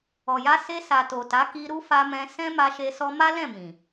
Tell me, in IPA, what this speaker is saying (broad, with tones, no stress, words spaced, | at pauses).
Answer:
ɔ˨ja˧ se˧ sa˨to˨ta˨˦ ki˧ ɾu˦fa˧mɛ̃˧ sɛ̃˦ma˧ʃe˧ sɔ˧ma˦lɛ̃˦˨ mĩ˨